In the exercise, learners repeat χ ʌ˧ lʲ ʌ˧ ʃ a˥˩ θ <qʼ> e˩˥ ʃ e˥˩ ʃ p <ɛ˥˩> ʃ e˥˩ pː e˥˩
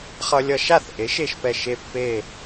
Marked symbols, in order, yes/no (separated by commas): no, yes